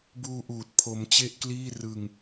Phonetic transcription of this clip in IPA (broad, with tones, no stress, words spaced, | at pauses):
buː˧ʔuː˨˩t̚ pʰo˧mt͡ɕe˥˩ʔkliː˥˩ rɯ˧ŋ